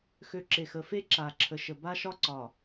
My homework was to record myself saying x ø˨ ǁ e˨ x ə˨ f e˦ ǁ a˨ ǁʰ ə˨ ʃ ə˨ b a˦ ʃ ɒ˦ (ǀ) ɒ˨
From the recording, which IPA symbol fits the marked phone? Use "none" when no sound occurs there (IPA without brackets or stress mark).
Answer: ǀ